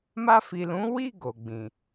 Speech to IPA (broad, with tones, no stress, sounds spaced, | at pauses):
m a˧ f i˨ l ũ˨˦ w i˦˨ ɡ o˨ ɡ͡b ĩ˨